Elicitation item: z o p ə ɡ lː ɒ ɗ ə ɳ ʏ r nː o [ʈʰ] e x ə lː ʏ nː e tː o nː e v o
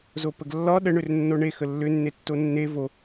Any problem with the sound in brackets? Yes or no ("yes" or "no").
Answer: yes